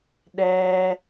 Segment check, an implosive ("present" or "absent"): present